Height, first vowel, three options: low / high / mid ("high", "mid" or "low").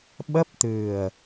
mid